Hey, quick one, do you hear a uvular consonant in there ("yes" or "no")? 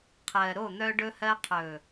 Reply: yes